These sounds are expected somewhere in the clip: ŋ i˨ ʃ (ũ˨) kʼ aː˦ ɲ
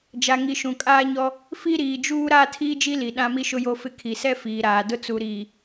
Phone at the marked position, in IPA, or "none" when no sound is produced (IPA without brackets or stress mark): ũ˨